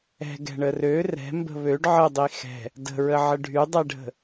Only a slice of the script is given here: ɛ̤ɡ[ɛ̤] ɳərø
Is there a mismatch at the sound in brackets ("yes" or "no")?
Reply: no